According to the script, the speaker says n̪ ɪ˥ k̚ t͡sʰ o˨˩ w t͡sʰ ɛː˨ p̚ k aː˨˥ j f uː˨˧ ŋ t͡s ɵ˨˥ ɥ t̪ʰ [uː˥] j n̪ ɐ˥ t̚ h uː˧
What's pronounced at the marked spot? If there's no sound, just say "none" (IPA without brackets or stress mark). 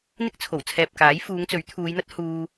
uː˨˧